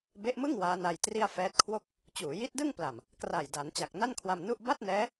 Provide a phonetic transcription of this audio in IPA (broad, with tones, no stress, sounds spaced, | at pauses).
b e˦˥ ʔ m ɯ˥˩ ŋ w aː˦˥ n a˧ j t r i˥˩ a̯ f ɛː˦˥ t̚ kʰ w o˥˩ k̚ | t͡ɕ uː˩˦ j i˦˥ t̚ d ɯ˥˩ ŋ p l a˨˩ m | k r a˨˩ j d a˩˦ n t͡ɕ a˨˩ k̚ n a˥˩ n kʰ w a˧ m n u˥˩ ʔ b a˥˩ t̚ n ɛː˦˥